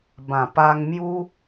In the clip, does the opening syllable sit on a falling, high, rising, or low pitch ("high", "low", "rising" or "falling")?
low